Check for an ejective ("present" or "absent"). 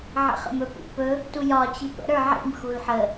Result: absent